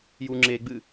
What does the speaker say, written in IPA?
j u ŋ͡ǁ e ɡ͡b ɨ

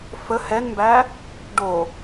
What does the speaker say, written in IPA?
f ə h ɛ n m b æ | ɖ o

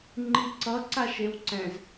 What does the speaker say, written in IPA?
ŋ͡ǃ i ǀ ʌ ǀ a ʃ e w ǀ ɛ̃ z

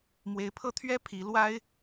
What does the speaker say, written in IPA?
m w e˧˥ ɪ̯ pʰ ɤ˥˩ t̪ʰ ɥ ɛ˥ pʰ i˧˥ l w a˥ ɪ̯

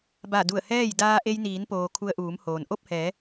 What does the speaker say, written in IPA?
b a˧˩ d u˧˩ ə̯ h ɛː˥˨ j d aː˧ ʔ e˧ j n iː˩˧ n p oː˩ kʰ u˧ ə̯ ʔ uː˩˧ m h oː˩ n ʔ o˥˨ p̚ h ɛː˩˧

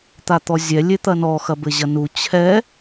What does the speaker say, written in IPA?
t̪ a t̪ ɔ zʲ ɛ lʲ e t̪ ɐ n ɔ x ɐ b ɘ ʑ ɐ n u t͡ɕʰ ɛ

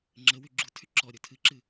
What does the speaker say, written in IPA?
ŋ͡ǁ ə w y ɡ͡ǁ u tʰ y ǁ ɔ ɾʲ o tʰ ɨ ǁ ɨ

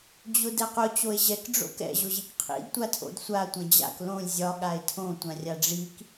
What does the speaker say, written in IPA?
d͡ʑ ʊ d ɛ q ʊ t͡ɕ o e̯ ʑ ɛ k ɖ͡ʐ o̰ k ɛ̰ ʑ ʊ ʑ i k qʰ ḭ d tʷ a tʰ o̰ d sʷ a tʷ ɛ̃ d͡ʑ a̰ k l õ lʲ zʲ ɒ ɠ a e̯ tʰ õ tʷ ã rʲ a ɖ͡ʐ i k

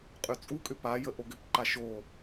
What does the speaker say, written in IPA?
qʼ y t͡sʼ u kʼ ʏ p a j ə ʔ o ɡ ʏ p ǃ a ʃ o

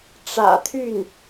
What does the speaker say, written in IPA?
ʈ͡ʂ ä̰˨˩ t̪ʰ y˥˩ n

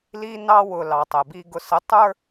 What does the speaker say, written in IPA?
l i˦ n ɑ˦ w ʊ˨ l ɑ˨ tˤ ɛ˨ b i˦ ɡ ʊ˨ s ə˨˦ tˤ ə˞˦

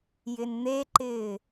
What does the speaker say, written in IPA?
j ɪ n n̪ e ǃ ɪː

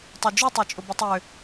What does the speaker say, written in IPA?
tˤ ø d͡ʒ u tˤ ø t͡ʃʼ ʊ b ʊ tˤ ø

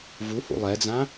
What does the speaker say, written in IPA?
v u h ṵ lˠ ɛ d͡z ã

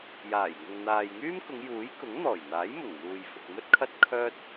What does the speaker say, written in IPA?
j aː˨˩ j ŋ ʊ˨ ŋ n̪ aː˨ j ŋ yː˥ m k ʊ˨˧ ŋ j uː˨˥ j k ʊ˨˥ ŋ n̪ ɔː˨˩ j n̪ aː˨˥ j m ʊ˨˩ ŋ m uː˨ j f ʊ˨ k̚ m ɵ˥ t̚ kʰ ɐ˥ t̚ kʰ œː˥ t̚

